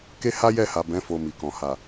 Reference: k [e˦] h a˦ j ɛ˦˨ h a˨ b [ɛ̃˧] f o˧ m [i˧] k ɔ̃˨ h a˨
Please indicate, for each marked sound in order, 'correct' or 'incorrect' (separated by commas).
correct, incorrect, incorrect